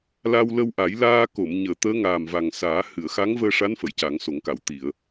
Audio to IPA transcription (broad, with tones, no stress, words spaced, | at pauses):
la˧wlə˧wʔa˨˩˦j laː˧ko˨˩˨m ɲəː˨˩˨t̪əː˧˥ ŋaː˨˩mva˨˩ŋsaː˨˩˦ hɨ˨˩˨ə̯xa˧˥ŋvəː˧ʂa˧˥n fə˨˩˨jca˨˩˦ŋso˨˩˦ŋka˨˩˨w t̪i˨˩˨ə̯